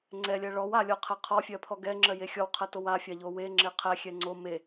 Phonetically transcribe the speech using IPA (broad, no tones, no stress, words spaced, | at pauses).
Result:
ŋ͡ǀɛlʲɜ ɭɔw alʲɔqʰɛ qʰɔfʲɜpʰɔ ɡɛŋ͡ǁɜje xʲɔwqʰɜtow afʲaʎo weŋ͡ǁe qʰɛxʲɛ ŋ͡ǀo me